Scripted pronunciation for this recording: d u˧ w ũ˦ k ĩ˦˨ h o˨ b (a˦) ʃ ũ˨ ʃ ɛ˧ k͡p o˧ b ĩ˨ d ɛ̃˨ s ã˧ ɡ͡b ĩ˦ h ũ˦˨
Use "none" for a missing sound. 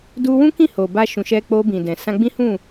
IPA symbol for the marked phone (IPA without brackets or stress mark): a˧